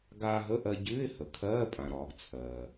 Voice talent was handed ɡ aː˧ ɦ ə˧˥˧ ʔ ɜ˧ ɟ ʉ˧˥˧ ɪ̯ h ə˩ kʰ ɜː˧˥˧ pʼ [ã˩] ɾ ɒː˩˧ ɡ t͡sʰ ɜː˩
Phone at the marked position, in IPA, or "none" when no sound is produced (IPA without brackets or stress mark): ã˩